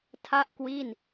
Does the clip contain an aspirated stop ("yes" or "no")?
yes